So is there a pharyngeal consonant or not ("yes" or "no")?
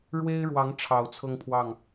no